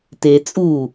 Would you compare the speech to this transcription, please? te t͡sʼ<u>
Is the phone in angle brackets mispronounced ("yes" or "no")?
no